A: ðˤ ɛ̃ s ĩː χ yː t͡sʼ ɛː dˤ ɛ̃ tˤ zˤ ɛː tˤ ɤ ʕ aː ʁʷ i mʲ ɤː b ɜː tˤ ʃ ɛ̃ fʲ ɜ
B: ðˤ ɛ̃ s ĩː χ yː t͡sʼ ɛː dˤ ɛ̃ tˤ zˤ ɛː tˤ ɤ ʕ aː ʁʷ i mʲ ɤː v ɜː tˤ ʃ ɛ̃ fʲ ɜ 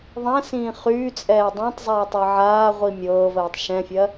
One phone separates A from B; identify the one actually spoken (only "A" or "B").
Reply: B